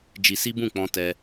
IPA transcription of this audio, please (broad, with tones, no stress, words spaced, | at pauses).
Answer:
d͡ʒi˧si˦ bũ˦˨k͡pɔ̃˧tɛ˧